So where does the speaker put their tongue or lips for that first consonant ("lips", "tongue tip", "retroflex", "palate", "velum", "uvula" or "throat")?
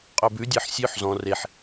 uvula